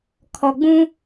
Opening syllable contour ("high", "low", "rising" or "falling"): low